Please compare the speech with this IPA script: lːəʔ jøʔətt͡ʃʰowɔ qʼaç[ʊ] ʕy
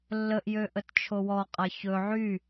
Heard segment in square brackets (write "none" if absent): ɵ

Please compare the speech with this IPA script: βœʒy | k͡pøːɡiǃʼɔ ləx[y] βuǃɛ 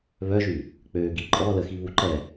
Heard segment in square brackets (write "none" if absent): i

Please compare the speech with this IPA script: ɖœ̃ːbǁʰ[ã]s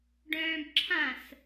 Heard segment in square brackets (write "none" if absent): ã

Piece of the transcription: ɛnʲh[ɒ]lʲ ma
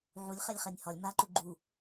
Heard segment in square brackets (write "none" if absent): ɒ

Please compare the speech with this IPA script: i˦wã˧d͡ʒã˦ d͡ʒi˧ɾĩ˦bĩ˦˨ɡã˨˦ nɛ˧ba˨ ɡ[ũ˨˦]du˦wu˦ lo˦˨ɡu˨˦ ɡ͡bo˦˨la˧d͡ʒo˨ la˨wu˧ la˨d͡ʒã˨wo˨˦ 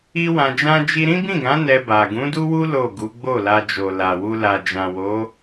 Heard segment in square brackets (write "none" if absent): ũ˨˦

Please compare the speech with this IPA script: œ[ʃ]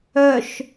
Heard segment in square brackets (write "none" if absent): ʃ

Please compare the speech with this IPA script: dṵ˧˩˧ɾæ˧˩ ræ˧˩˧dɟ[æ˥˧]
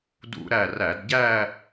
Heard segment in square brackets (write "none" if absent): æ˥˧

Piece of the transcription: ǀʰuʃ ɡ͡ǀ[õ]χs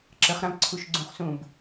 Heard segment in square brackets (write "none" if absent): ũ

